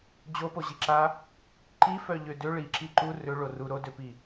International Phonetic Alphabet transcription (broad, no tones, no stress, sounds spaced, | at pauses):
d͡ʑ o p o ʑ i ǁ a | ǃ i f œ ʎ ø d ø ɭ i ǁ i ǃ u r ø ɭ o r u ɾ o d ø p i